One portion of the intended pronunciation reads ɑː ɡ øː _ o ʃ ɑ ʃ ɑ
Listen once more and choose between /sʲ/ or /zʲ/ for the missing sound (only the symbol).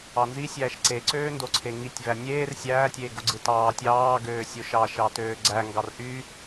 sʲ